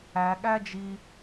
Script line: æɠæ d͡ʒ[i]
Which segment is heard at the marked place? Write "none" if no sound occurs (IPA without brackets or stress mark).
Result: i